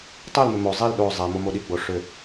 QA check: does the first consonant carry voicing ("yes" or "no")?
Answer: no